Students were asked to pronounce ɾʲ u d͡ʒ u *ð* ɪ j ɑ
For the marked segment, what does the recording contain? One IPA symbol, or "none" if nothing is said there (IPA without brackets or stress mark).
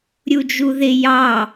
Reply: ð